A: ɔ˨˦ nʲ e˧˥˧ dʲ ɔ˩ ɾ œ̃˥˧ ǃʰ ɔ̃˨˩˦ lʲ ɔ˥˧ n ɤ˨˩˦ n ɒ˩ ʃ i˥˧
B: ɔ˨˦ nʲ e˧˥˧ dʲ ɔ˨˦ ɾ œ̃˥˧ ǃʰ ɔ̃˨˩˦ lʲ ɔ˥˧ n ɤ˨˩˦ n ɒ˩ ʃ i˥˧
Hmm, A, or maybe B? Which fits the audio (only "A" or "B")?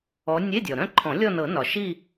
A